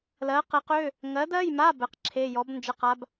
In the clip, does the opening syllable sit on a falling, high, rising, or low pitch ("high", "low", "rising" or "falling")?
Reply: rising